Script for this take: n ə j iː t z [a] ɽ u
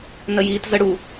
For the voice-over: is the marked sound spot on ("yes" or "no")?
no